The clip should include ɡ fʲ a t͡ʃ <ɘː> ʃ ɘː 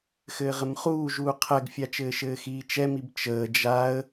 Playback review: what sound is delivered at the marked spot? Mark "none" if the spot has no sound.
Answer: ɘː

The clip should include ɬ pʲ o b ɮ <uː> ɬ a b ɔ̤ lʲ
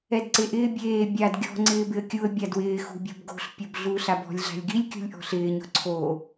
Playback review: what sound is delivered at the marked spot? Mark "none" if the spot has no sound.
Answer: uː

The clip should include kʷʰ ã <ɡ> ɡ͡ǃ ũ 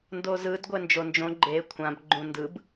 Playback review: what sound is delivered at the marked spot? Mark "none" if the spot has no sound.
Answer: b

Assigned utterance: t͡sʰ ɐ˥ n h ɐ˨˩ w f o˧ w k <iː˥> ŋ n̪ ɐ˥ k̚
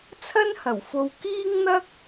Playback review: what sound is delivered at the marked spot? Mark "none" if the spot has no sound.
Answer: iː˥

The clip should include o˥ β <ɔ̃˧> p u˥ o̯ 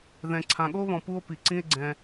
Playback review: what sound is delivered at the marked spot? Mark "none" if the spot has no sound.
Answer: ɔ̃˧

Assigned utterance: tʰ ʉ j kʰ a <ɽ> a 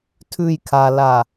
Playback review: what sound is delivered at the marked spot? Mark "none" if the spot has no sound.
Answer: l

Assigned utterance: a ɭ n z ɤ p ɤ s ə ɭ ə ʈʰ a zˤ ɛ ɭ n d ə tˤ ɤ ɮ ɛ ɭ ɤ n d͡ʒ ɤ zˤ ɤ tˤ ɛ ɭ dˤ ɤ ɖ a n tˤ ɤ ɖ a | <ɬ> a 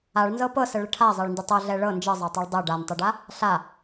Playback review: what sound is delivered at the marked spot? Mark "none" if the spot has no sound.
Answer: ɬ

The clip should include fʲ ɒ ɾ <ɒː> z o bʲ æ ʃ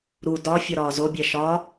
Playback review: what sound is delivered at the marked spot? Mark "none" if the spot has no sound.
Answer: ɒː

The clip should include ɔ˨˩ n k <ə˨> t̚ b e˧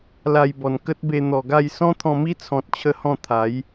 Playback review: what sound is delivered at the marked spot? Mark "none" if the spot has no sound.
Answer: ə˦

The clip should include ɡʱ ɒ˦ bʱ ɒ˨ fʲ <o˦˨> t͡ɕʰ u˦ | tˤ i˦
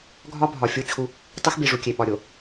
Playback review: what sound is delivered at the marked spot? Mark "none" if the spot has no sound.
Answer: o˦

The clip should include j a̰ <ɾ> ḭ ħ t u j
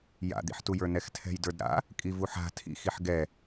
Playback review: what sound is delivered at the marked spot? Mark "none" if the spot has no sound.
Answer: d̪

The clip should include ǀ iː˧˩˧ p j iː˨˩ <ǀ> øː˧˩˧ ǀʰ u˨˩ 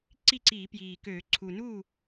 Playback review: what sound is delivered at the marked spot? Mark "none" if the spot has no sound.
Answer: k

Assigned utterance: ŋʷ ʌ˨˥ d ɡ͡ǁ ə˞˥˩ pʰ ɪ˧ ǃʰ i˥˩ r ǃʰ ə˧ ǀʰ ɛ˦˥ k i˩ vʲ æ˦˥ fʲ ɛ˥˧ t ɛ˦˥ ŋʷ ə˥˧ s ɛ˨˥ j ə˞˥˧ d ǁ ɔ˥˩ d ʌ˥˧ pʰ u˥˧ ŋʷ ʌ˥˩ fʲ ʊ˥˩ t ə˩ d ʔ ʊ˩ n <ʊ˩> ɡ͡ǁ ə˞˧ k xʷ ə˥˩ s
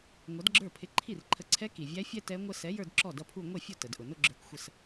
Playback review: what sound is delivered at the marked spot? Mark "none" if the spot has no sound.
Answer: ʊ˥˧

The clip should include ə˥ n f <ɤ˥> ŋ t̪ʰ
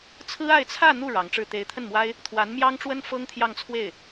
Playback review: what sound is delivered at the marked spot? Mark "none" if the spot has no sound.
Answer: ɤ˥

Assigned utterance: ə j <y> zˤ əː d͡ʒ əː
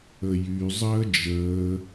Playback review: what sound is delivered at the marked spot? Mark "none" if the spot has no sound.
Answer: y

